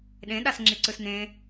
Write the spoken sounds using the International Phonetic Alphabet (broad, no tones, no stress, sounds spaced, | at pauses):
ɗ ẽ ɗ a s ŋ͡ǁ i ǀ ɯ s n ẽ